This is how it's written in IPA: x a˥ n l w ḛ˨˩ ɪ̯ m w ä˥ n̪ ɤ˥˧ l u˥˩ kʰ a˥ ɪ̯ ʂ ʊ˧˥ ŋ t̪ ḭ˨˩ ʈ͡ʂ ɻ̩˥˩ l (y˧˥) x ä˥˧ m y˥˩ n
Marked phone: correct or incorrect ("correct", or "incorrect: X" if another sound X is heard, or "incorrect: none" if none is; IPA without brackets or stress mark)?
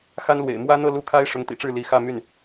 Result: incorrect: i˧˥